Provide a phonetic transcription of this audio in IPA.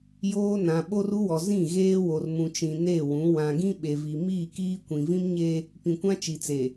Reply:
joː˦ nã˨ ɓo˦ru˦wɔ˨ zĩ˦˨ɣeː˦ wo˨rmũ˨t͡ʃĩ˨ ne˦˨wũ˨˦ wã˨ɡĩ˦ ɓe˨vi˨ miː˦˨kiː˦kʷĩ˨ vĩ˦mɲe˦ | pĩ˨kʷã˦t͡ʃi˨t͡se˨

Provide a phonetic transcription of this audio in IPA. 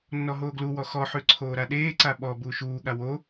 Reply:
nːɔɦoːɡluwɔ xɔħʉ ǀʰoːɾaɗeːǀa ɓɔ buːʃuːɠa wo

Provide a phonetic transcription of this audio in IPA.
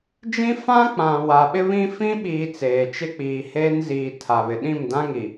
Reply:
d͡ʒĩ˦ fã˦k͡pã˨ wa˨ɓɪ˦βĩ˦ fĩ˦ɓiː˨ t͡seː˨t͡ʃɪ˦k͡piː˨heː˦n ziː˨ tʰa˨βɪ˨ ɗĩ˦˨mdã˦ŋi˨

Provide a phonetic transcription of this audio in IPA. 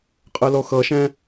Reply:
qʼɯloxɤʃɛ̃

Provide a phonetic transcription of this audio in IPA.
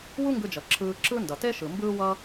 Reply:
wu˥ŋɡɯ˧d͡ʒʌ˩ ǁʰɯː˧ǁɯ˥ndʌ˩ te˥ʃɯ˩ mbɯː˥wʌ˥

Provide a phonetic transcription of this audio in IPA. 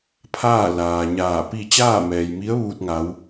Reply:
pʰaː˥˨laː˩ ɲaː˧˩ pi˥˨ t͡ɕaː˥˨mɛː˩jmi˧˥ə̯ ʋuː˧t̚ŋa˩˧w

